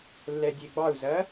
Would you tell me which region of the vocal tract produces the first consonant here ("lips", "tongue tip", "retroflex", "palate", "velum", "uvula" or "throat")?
tongue tip